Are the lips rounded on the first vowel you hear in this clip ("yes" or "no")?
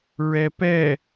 no